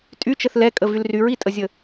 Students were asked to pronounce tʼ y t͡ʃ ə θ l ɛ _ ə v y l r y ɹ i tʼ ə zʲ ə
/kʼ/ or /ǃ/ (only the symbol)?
kʼ